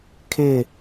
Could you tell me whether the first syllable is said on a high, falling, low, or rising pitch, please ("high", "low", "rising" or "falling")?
falling